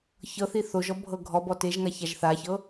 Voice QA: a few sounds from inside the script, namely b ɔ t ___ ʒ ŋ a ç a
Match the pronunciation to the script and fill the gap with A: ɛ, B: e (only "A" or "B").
B